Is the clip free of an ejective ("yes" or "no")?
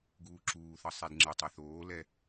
yes